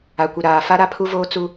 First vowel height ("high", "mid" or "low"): low